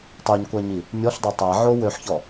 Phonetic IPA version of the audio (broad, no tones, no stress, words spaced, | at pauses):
tˤyɲkʷaɲi | mʲɔɬdˤø tˤaʕo wøħçɔ